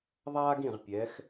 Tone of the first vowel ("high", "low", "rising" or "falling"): high